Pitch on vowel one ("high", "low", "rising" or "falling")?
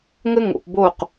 high